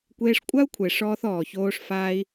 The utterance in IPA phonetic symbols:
kʷ eː˧ ʂ kʷʼ a˦ u̯ kʷʰ e˨ ʂ ɔː˧ θ ɔː˨ ç oː˧ ʂ f aː˧ i̯

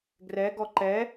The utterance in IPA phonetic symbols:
ɡ r ɛ ɡ ɔ ǃ ɛ

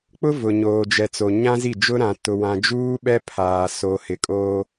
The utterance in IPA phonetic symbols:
k͡p ʊ˦ v ʊ˨ ɲ oː˨ d͡ʒ ɛ˨ t͡s o˨ ɲ ã˦ z i˦˨ d͡ʒ ʊ˦ ɾ ã˨ t ʊ˨ w ã˨ d͡ʒ uː˦ ɓ ɛ˦ pʰ aː˨ s o˨ h ɪ˨ kʼ oː˦

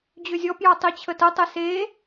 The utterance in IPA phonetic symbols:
d͡ʑ ø zʲ ɔ p j ɑ tˤ i t͡ɕʰ ə t ə tˤ e s e

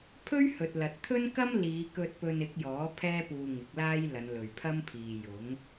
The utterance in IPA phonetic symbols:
pʰ ɵ˥ ɥ h ɵ˨ t̚ l ɐ˨ t̚ t̪ʰ ɵ˥ n k ɐ˥ m l iː˨˧ k ɵ˧ t̚ p ɵ˧ n ɪ˨˥ k̚ j ɔː˨˥ pʰ ɛː˥ p uː˧ ŋ ɪ˨˥ k̚ l aː˥ j l ɐ˨˧ n l ɵ˨ ɥ pʰ ɐ˥ m pʰ iː˨ j ʊ˨˥ ŋ

